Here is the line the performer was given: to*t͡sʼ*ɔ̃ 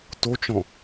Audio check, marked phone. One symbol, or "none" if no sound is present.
t͡ʃ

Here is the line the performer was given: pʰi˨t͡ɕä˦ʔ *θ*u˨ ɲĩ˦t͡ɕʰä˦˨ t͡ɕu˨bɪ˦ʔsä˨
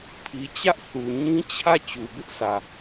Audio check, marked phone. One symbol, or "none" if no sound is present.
θ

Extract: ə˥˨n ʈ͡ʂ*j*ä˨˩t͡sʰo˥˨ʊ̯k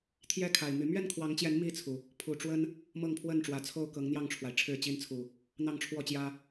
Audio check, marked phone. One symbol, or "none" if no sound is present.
w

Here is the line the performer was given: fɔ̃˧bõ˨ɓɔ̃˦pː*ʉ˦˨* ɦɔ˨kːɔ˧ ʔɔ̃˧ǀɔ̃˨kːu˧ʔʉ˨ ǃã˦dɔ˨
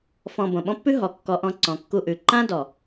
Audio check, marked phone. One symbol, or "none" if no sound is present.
ʉ˦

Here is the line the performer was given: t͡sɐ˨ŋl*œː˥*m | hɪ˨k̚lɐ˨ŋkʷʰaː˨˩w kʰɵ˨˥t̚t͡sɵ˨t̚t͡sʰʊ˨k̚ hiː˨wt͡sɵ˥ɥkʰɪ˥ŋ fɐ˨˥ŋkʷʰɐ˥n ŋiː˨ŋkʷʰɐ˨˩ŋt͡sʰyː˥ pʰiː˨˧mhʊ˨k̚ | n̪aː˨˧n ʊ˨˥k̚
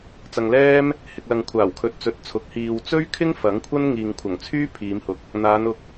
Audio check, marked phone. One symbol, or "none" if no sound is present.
ɛː˥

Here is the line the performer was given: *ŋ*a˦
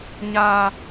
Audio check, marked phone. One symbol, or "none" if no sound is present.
ɲ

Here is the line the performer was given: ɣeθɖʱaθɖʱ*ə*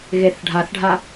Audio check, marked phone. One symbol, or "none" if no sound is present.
a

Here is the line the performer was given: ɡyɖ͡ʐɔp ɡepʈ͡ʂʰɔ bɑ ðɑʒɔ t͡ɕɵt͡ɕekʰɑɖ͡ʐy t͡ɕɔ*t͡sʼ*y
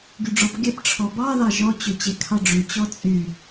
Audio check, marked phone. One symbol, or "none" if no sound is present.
t͡sʼ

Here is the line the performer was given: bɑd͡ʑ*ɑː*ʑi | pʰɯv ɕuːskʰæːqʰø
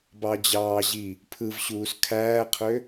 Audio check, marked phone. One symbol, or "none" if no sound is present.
ɑː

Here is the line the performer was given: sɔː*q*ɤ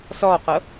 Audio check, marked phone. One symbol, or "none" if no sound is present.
q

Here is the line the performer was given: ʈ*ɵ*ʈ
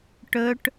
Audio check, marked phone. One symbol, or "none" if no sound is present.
ɵ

